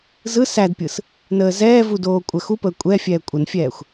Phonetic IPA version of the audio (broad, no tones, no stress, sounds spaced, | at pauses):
z ɯ s æ d pʲ ɯ s | n əː z ɛː v u d oː kʷʼ ɜ x u p əː kʷʼ ɛ fʲ ɛː kʷʼ ə n fʲ ɛː xʷ